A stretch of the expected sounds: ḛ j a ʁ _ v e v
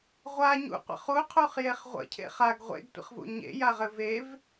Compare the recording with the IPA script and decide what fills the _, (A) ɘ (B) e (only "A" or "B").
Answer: A